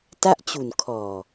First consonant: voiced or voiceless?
voiceless